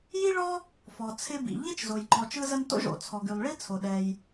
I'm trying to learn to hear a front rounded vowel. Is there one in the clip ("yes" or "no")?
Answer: yes